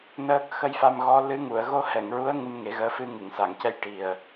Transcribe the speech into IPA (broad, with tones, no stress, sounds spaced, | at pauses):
n əː˦˥ k̚ x ə˧ j f a˧ m ɣ ɔ˧˥ l ɨ˧˥ ŋ u˨˩˨ ə̯ ɣ o˧˥ h ɛ˨˩˨ ŋ ɹ u˧˥ ə̯ ŋ ɨ˧ m ŋ e˨˩˦ ɣ əː˧˥ f ɨ˧ ŋ ɨ˨˩˨ ŋ s a˨˩˨ ŋ c ɛ˧ j ʈ i˨˩ ə̯